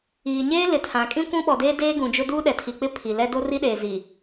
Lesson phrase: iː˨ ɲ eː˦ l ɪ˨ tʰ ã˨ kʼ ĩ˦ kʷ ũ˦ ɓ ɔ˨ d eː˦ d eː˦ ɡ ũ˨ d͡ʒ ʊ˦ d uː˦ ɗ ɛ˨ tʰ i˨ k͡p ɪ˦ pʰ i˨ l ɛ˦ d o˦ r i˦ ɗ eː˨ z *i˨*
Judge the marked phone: correct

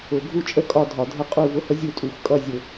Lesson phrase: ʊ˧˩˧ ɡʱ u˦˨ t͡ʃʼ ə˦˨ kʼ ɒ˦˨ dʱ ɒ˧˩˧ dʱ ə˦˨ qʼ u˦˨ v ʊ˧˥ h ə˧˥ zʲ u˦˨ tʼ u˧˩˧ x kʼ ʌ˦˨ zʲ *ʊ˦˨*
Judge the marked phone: incorrect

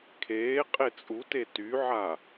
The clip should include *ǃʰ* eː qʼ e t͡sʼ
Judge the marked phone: incorrect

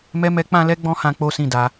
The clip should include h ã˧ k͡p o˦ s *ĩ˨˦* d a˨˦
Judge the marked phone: incorrect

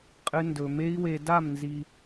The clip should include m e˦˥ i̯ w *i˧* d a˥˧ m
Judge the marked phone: incorrect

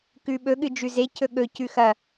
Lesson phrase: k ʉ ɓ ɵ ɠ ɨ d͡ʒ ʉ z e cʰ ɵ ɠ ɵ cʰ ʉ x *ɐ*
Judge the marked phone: correct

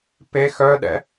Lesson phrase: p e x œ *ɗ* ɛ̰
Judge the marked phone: correct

